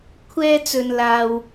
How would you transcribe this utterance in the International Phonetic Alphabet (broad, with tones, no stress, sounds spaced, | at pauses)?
kʷʰ ɛː˧ t͡s ɵ˨ n l aː˨ w